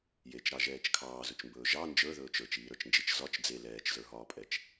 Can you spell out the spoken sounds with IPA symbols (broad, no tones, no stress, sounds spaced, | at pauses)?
j e t͡ʃ ɾ ɑ ʒ ɛː t͡ʃ kʰ ɑː z ɵ t͡ʃ m b ɵː ʒ ɑ n d͡ʒ ə˞ ð ɵː t͡ʃ ə˞ t͡ʃ iː ɾ ə˞ t͡ʃ n d͡ʒ i t͡ʃ z ɒ t͡ʃ d͡z e l ɛː t͡ʃ z ə˞ ɦ ɒː pʼ ɛ t͡ʃ